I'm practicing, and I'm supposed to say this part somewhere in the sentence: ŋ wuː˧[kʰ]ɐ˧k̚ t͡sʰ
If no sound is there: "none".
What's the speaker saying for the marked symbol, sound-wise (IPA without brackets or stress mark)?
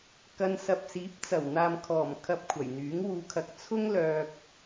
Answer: kʰ